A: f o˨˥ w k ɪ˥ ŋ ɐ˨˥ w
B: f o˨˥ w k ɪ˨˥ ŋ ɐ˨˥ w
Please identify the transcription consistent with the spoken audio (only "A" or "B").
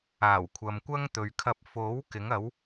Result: B